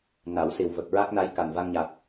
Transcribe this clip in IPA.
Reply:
n a˨˩˦ w s i˨˩ w v ə˨˩ k̚ ɹ a˦˥ k̚ n a˧˥ j k a˨˩ n v a˧ ŋ ɲ a˨˩ k̚

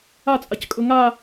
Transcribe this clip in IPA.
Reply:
a t͡sʼ a c kʼ ɵ ŋ a

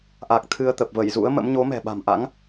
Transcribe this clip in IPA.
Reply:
ʔ a˨˩ k̚ t̪ʰ ɨ˧ ə̯ t̪ ə˨˩ p̚ v ə˧˩ j z ṵ˧˥ ə̯ m ə̰˧˥ m ɲ o˨˦ m ɛ̤˨˩ ɓ a̤˨˩ m ʔ a̰˧˥ ŋ

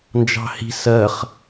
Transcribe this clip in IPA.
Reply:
n d͡ʒ ɑ̤ h i̤ s ɜ χ

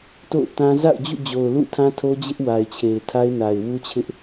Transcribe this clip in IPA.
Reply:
t o̰˦˨ ʊ̯ t ã˦ z a̰˦˨ ʊ̯ d͡ʑ ṵ˦˨ d͡ʑ o˨ ʊ̯ l ṵ˦˨ tʰ ã˦ tʰ o˦ d͡ʑ ɪ˦ ʔ w a˨ ɪ̯ t͡ɕʰ e˨ ɪ̯ tʰ a˦ ɪ̯ n a˨ ɪ̯ w u˦ t͡ɕʰ ɪ˦ ʔ

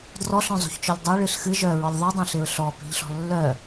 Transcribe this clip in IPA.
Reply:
d r ɔ ɬ œ̃ zˤ o̤ ç t͡ʃ œ lʲ dˤ ɤ ɭ ɨ ɬ x ɨ ʒ œ ɹ ɔ lʲ ðˤ œ dˤ œ̃ ɬ ɪ ɹ ɬ ɔ p i̤ ʎ ɬ ɔ̤ lː œ

